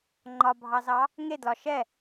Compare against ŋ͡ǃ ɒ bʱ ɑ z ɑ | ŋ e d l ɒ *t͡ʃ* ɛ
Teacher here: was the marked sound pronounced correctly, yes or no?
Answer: no